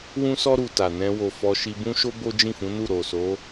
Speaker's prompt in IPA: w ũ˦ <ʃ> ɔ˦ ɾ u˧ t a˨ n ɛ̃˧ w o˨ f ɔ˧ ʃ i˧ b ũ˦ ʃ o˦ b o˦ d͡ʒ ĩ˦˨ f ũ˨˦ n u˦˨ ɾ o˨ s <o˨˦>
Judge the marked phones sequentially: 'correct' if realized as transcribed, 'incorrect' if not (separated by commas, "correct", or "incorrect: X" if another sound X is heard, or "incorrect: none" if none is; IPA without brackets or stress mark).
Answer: incorrect: s, correct